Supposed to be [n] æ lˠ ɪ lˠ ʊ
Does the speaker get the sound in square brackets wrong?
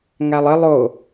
yes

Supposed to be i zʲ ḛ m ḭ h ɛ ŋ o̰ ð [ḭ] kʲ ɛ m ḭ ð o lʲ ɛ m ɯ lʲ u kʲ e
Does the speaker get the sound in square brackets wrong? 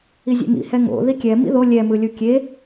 yes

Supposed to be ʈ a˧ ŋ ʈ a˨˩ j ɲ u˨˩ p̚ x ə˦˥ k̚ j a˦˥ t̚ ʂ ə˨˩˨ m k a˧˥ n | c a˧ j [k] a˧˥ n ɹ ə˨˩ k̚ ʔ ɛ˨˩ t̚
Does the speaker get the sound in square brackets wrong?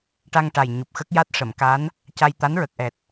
yes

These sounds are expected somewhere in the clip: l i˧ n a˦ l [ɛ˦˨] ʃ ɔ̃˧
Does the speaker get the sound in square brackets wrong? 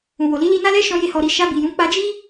yes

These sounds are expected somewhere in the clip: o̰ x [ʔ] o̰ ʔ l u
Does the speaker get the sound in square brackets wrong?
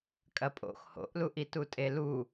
yes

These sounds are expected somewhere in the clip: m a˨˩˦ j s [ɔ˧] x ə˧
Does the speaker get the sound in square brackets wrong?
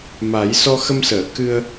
no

